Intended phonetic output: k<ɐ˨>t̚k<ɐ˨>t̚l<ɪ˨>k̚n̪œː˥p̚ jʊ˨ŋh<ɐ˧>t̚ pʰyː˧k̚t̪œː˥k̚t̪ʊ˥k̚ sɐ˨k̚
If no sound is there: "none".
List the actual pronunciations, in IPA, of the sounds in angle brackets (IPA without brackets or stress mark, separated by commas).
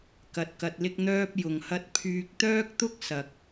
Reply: ɐ˧, ɐ˧, ɪ˥, ɐ˥